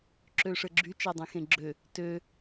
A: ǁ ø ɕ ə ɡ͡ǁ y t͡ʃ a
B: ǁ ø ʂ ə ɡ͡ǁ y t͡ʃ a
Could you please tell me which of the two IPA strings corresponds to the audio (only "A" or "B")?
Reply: B